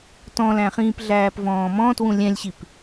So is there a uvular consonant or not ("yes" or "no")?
yes